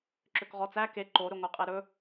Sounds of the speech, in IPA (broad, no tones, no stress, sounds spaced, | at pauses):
ǁ ø k ʁ ɔ t͡s æ k e ǃ o ɾ ɵ ŋʷ ɛ qʼ e ɾ ɵ